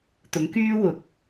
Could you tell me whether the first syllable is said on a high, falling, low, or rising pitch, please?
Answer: rising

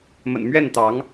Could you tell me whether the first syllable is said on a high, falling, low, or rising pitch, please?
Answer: low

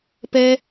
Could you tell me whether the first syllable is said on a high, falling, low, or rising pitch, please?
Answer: high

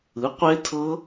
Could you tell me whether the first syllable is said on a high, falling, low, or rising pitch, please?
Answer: rising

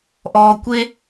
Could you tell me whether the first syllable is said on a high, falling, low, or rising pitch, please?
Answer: low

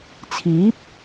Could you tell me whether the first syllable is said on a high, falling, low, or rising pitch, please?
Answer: rising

